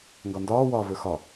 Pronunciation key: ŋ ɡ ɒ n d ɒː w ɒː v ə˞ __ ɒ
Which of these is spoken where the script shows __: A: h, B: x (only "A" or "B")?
B